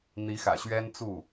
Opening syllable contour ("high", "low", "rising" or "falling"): rising